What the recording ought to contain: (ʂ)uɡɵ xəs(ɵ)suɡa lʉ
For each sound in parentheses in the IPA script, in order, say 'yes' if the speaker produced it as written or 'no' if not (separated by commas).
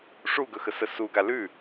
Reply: yes, no